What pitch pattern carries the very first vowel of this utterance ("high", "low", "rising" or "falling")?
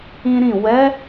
high